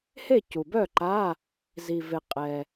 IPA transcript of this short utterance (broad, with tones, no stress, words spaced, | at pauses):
he˥˨cu˩bœ˥˨ǃa˧˥˧ | zi˩ ve˩qʼɛ˩